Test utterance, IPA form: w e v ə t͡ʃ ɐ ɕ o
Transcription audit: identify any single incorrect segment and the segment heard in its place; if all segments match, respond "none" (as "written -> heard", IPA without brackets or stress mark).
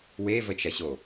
none